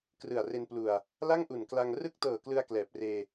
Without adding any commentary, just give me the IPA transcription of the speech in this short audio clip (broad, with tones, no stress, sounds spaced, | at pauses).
k r ɯ˨˩ a̯ r e˧ n p l u˨˩ a̯ | l a˥˩ ŋ ʔ u˨˩ n k l a˧ ŋ r ɯ˥˩ k̚ t ɤː˨˩ k l ɯ˧ a̯ k l ɛː˨˩ p̚ r eː˧